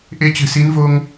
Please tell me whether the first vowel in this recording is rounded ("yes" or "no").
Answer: no